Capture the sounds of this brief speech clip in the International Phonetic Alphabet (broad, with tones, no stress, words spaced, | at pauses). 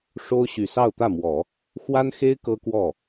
ʂo˥ʊ̯ ɕy˨˩sɑ˥˧ʊ̯t̪ä˥˩mwɔ˨˩˦ | xwa˥nxe˥ɪ̯ kɤ˥kwɔ˥˩